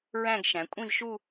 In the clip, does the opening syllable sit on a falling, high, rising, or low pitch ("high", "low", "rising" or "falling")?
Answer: falling